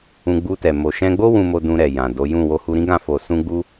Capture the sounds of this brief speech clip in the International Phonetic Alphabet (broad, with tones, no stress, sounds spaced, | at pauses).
ũ˧ ɡ͡b u˧ t ɛ˨ m o˨ ʃ ɛ̃˧ ɡ͡b o˦ w ũ˧ m o˧ d ũ˧ ɾ ɛ˨ j ã˨ d o˨˦ j ũ˦˨ w o˧ h u˧ ɾ ĩ˦ ɡ ã˦˨ f o˧ s ũ˦ ɡ͡b u˦